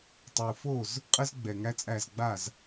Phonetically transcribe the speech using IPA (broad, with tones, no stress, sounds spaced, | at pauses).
tˤ u˩ f o˥˩ z | qʼ ə˥ z ɡ͡b ɛ˩ ŋ æ˥ t͡sʼ æ˥˩ z ɡ͡b a˥˩ z